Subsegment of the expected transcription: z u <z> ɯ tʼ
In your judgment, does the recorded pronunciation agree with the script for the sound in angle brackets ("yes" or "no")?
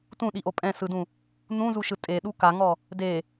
no